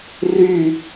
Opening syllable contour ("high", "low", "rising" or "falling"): falling